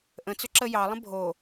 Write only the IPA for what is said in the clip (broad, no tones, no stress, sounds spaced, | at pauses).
ʔ ə̃ t͡s ʏ ǁ ə j ɑ lˠ ə̃ bʱ o